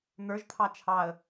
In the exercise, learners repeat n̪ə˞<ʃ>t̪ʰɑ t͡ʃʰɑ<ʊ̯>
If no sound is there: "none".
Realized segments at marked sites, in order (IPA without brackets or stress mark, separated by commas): ʒ, ə̯